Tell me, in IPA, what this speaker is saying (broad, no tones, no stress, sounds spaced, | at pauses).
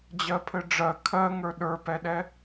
d͡ʑ ɜ pʰ ɘ ɖ͡ʐ ɜ kʰ ɜ ŋ ə˞ ɗ ə˞ p ɛ ɗ ɛ